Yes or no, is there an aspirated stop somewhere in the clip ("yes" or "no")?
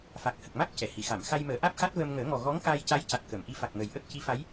no